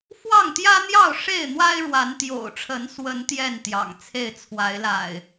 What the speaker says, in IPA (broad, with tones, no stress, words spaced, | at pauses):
fwɑ˥˨ŋt̪jä˦n̪jɑ˥˨ʊ̯ ʂe˥˨ɪ̯n̪wa˦ɪ̯ɻwa˨˦n t̪jo̰˨˩ʊ̯ʈ͡ʂʰə˨˦nswə˨˦n t̪jɛ˥˨n t̪jɑ̰˨˩ŋt͡sʰe˥˨ɪ̯ t͡sʰwa˨˦ɪ̯la̰˨˩ɪ̯